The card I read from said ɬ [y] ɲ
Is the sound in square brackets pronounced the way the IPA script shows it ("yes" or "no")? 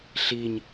no